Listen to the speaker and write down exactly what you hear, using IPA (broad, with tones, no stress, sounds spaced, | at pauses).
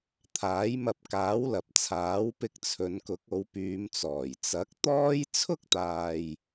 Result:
t̪ʰ aː˨˥ j m ɐ˧ p̚ k aː˨˥ w l ɐ˨ p̚ t͡sʰ aː˨˥ w p ɪ˧ k̚ t͡sʰ ɵ˨˧ n k ʊ˨˥ k̚ o˨˧ w p yː˨˧ m t͡s ɔː˨˩ j t͡s ɐ˨˥ k̚ t̪ ɔː˥ j t͡sʰ ʊ˥ k̚ t̪ aː˨ j